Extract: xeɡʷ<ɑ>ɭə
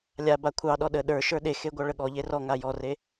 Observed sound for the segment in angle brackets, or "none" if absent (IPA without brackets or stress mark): ɑ